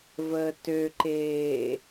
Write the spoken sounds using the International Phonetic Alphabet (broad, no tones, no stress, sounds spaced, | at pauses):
v əː t ø ǃ eː